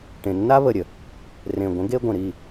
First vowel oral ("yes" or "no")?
no